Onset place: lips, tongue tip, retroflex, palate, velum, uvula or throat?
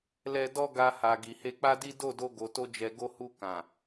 tongue tip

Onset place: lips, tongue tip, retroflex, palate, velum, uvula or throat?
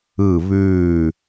lips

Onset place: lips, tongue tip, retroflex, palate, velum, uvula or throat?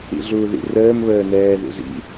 tongue tip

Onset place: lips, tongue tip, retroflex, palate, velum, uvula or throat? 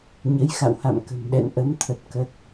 palate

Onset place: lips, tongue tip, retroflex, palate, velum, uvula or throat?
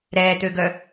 tongue tip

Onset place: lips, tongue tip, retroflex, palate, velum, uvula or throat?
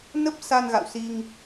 tongue tip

